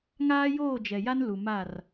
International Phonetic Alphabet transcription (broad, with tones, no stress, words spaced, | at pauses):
ŋaː˦joː˦˨d͡ʒɛ˨ja˦n lu˨ma˦˨r